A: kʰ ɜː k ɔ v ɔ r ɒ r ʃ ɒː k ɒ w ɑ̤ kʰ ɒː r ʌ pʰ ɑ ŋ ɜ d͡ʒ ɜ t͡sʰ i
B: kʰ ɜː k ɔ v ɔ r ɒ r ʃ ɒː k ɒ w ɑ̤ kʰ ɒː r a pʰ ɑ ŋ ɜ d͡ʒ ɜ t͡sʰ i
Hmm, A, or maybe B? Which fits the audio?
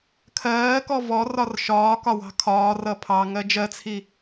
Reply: A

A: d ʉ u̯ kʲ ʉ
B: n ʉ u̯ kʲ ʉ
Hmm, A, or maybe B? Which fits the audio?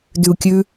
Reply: A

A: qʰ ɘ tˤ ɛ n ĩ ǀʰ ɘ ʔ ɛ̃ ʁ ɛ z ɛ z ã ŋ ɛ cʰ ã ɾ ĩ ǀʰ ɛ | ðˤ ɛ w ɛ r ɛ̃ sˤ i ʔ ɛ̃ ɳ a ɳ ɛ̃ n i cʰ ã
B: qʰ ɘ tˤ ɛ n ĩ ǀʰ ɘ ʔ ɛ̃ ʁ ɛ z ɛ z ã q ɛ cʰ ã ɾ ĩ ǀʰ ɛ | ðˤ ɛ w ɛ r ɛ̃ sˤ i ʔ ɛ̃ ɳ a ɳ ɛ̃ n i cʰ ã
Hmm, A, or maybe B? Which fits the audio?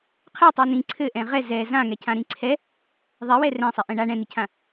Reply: A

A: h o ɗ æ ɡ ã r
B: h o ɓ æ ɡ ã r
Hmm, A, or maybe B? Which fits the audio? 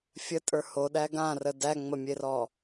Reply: A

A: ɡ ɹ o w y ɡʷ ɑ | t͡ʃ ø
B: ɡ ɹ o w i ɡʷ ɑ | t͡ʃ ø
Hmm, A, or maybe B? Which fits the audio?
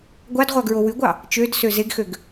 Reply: A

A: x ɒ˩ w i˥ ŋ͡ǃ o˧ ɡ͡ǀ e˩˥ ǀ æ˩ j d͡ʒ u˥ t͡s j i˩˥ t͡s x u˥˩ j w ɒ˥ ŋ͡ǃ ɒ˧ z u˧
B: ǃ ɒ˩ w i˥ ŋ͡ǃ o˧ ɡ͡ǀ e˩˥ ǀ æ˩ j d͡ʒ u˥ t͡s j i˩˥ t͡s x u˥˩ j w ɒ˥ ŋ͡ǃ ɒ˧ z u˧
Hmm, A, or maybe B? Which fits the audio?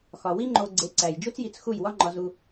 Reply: A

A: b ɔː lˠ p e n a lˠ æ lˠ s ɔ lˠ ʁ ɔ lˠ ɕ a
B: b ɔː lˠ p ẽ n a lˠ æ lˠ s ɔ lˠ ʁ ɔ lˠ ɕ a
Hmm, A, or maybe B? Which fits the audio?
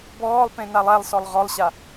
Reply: B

